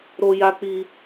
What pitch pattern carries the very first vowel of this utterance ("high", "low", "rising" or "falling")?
high